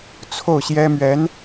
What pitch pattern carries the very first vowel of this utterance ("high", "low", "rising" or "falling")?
falling